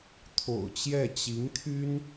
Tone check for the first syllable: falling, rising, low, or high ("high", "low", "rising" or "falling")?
low